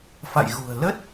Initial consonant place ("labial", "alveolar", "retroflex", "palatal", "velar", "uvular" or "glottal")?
labial